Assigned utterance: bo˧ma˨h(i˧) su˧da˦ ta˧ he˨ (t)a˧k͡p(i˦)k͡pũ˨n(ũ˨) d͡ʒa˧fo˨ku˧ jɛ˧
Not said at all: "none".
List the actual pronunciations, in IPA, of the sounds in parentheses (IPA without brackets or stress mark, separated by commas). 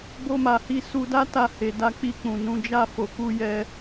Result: i˧, d, i˧, ũ˧